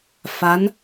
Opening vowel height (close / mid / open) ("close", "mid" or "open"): open